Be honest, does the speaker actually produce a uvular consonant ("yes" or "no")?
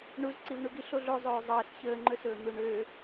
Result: no